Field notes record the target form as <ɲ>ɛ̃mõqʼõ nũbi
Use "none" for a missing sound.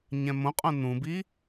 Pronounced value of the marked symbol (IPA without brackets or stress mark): ɲ